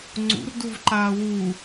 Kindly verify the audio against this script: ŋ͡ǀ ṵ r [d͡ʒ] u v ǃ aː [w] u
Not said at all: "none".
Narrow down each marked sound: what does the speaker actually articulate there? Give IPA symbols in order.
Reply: d, w

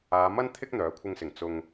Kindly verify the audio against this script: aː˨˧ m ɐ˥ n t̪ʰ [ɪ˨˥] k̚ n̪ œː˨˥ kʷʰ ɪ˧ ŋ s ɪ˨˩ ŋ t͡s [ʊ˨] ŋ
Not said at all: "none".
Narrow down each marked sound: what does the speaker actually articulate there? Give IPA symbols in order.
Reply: ɪ˥, ʊ˨

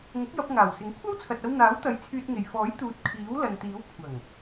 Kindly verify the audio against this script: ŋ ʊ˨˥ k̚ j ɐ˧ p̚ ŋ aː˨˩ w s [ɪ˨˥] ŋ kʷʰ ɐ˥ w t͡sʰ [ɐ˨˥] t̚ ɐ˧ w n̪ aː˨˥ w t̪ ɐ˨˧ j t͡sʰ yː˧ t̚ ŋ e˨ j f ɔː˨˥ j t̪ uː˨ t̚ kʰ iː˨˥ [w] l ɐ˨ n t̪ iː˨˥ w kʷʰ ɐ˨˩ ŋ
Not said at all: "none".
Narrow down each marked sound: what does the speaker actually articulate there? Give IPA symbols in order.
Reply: ɪ˨˥, ɐ˨, w

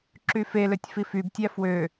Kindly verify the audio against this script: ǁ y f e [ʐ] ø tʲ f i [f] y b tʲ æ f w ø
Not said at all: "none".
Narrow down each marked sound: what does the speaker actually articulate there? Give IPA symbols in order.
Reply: l, f

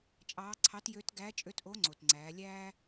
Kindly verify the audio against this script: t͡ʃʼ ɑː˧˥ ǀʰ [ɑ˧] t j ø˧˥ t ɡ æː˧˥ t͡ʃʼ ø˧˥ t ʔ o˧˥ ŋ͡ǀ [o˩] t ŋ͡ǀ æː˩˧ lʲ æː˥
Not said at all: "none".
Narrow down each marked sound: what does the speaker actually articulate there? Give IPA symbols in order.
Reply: ɑ˧˥, o˩

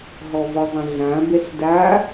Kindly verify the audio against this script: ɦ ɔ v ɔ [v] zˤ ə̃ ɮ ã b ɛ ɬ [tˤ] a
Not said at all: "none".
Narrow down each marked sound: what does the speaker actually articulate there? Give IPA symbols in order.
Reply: none, d

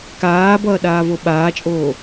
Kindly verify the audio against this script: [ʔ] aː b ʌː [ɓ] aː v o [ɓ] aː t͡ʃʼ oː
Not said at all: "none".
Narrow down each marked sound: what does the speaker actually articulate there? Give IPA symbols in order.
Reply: k, ɗ, ɓ

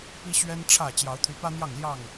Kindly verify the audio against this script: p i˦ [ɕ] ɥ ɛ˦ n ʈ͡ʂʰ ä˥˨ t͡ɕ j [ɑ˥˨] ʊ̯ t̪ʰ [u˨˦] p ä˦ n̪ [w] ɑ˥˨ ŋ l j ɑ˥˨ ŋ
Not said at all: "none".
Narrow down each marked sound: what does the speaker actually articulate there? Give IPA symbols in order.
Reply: ɕ, ɑ˨˦, y˨˦, j

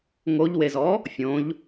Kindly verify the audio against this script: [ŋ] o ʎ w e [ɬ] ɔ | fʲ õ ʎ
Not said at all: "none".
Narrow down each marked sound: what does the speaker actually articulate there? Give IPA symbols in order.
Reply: ŋ, z

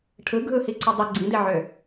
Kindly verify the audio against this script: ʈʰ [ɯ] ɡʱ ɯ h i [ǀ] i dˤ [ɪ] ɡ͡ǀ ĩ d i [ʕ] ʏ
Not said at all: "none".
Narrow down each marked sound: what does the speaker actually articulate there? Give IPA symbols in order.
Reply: ɯ, ǀ, ɪ, ʕ

